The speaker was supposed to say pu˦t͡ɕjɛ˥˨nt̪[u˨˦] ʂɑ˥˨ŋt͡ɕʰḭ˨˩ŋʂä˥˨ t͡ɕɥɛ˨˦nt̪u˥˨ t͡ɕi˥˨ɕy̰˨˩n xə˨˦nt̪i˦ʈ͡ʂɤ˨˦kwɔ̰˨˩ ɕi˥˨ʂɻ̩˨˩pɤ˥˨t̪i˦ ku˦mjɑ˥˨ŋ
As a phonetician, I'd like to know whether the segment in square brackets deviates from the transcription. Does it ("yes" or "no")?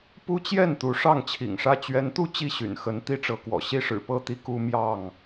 no